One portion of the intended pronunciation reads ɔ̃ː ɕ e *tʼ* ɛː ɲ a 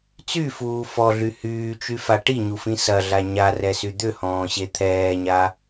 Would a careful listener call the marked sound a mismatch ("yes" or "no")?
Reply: yes